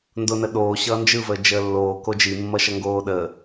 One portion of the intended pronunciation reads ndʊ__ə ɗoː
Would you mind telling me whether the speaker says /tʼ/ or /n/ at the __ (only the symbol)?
n